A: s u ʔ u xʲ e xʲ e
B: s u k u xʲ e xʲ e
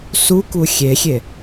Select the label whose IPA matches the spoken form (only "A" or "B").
B